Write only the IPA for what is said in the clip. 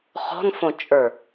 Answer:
χ ɔ̤ n f õ t͡ʃʼ ə˞

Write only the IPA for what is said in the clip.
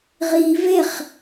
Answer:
ʁ i v e χ

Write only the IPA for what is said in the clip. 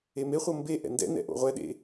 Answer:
e m e χʷ ɤ m b e ʔ ɛ̰ n d ɛ̰ n ɛ̰ ʔ o̰ ʁʷ ɛ ɗ ḛ

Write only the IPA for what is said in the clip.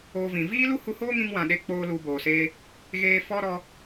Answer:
oː˧ v ĩ˨ v iː˦ l u˦ h u˧ h oː˦ ŋ ĩ˧ ŋ w ã˨ ɗ e˧ k͡p oː˦ l u˧ b oː˨ s eː˧ | ɣ eː˧ f ɔ˧ ɾ ɔ˧

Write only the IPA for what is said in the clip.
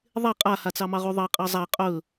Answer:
ðˤ e qʼ a h a t͡s ɑ m ɑ ʁ u ðˤ ɑ qʼ ɑ zˤ a qʼ ɵ

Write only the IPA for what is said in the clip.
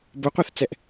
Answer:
b o qʷ ɛ θ t͡s ɛ ʔ

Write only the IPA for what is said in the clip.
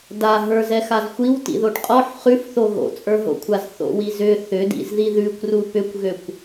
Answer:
d a ɦ ə˞ z ɛ x a z xʷ i w t ḭ ð o ʈ qʼ ɔ ħ χ ʉ f θ o ɣ o̰ t͡sʼ ə˞ ɦ o̰ kʷʰ a z θ o̰ w i z ʏ θ ʏ d ḭ z ð i ð ʉ kʷ r u p ʏ kʷ ɣ ø kʷ

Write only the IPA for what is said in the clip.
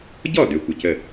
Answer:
ɟ ɔ˥˩ d ø˨ kʷ ɪ˨ c ə˥˩

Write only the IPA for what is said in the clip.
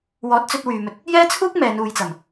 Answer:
w ɔː˨˥ t̚ t͡s ɵ˧ t̚ w yː˨ m ɵ˧ t̚ | j ɛː˥ t͡sʰ uː˥ k̚ m ɛː˨˧ n uː˨˧ j t͡s ɐ˨˩ m

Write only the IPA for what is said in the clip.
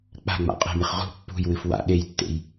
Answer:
k͡p a̤ ŋ͡m a̰ qʼ e̤ m ɨ χ ʁ ṳ pː ṳ j w ɨ f w a̰ ɗ e j tː ḛ j

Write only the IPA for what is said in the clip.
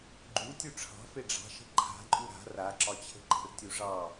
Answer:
ɡ͡ǃ u tʲ u ʈ͡ʂʰ ɑ̤ f e ɖ͡ʐ ɑ̤ ʃ ə̤ ǃʰ a̤ ǃʼ u ɾ a̤ r a ǁ ɒ t͡ɕʰ ə̤ ǃ ə̤ r tʲ u ʐ ɑ

